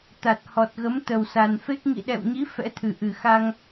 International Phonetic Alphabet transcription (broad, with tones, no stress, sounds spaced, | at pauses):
t̪ a˨˩ t̚ h ɔ˨˩ t̚ ɣ ə˨˦ m t̪ ə˨˩ w s a˨˩ n f e˦˥ k̚ ŋ ḭ˧˨ ɗ ɛ̰˧˨ w ɲ i˨˦ f ɛ̰˧˥ t̪ʰ ɨ˨˩ ʔ ɨ˨˩ x a˧ ŋ